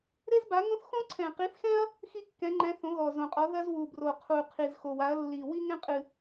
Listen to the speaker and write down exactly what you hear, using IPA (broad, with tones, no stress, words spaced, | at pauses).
ɾe˥zba˨˥ ŋõ˥θ xõ˥ǀʰɛ̃˨˩qi˨˥θxɛ̃˥ɐ̯ | xi˥kːɛ̃˨˥ŋ͡ǃɛ̃˨˥ θõ˨˥ɣɔ˨˩zõ˨˩qʼɔ˨˥ ðɐ˥zwu˨˩bro˨˩ qʰu˨˩qʰi˨˩z xo˨˩wa˨˥ɐ̯lːi˨˩ wi˥ŋɛ̃˥qʼɨ˨˩